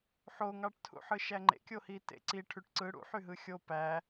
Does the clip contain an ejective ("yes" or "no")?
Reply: no